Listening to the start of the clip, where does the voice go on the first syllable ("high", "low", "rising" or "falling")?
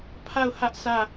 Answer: falling